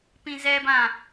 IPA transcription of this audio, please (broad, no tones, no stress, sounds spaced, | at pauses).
p ĩ z ɛ b ã